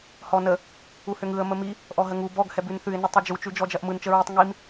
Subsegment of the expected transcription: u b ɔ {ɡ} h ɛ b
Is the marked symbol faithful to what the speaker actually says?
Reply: yes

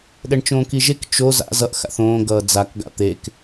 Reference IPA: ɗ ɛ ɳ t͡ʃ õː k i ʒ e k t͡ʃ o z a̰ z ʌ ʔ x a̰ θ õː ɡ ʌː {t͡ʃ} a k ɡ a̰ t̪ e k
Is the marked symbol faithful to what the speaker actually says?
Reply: no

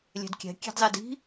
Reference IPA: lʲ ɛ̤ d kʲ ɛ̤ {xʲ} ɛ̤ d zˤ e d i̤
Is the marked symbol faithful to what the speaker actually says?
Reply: no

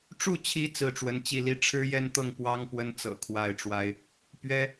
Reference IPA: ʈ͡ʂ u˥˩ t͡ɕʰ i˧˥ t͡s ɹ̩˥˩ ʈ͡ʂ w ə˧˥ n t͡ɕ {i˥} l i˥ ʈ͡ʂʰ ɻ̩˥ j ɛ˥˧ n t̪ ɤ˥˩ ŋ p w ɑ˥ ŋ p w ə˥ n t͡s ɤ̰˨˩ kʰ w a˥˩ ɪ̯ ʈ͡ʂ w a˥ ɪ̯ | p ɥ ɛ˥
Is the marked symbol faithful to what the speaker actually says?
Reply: no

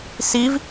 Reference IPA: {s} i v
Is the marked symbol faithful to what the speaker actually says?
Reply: yes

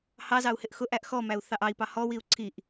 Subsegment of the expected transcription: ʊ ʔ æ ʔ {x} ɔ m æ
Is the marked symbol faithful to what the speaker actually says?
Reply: yes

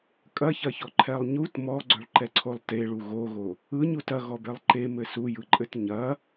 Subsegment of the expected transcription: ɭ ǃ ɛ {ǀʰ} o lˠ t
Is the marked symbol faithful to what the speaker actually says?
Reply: yes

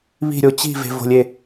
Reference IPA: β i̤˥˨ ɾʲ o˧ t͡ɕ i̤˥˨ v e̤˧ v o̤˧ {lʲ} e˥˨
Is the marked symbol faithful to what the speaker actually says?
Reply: yes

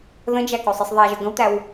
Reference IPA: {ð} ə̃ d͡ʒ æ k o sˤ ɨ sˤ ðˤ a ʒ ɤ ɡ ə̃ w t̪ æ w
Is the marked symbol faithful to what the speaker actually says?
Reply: yes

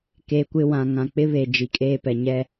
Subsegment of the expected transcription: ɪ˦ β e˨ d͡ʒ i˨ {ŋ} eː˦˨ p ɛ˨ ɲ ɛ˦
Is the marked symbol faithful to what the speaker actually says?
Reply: no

